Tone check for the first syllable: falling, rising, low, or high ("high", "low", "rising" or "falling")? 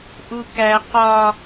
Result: high